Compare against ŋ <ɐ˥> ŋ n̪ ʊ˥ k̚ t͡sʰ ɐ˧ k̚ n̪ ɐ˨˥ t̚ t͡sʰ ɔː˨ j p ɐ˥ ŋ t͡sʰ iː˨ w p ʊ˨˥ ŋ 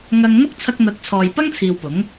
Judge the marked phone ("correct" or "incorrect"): incorrect